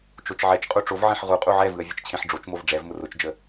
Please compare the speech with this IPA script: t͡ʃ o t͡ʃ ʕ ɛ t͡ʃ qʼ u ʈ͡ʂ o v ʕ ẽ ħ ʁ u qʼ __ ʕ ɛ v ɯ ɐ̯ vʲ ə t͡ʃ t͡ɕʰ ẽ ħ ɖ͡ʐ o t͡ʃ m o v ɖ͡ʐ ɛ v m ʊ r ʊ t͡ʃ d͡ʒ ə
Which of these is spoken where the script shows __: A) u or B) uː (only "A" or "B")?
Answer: A